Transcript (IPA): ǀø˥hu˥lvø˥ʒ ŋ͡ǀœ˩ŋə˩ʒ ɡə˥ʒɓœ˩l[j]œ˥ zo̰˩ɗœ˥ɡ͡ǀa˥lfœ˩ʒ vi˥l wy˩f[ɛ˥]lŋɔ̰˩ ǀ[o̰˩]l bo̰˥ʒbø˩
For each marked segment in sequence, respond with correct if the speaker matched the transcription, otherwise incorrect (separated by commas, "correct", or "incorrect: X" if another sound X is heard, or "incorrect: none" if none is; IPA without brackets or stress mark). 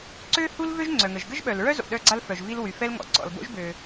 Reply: incorrect: ɹ, correct, incorrect: ɔ̰˩